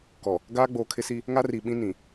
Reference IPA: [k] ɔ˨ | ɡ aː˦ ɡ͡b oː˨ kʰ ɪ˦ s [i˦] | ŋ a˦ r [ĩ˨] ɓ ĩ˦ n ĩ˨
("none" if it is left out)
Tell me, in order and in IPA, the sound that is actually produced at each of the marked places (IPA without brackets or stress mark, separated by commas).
k, i˦, i˨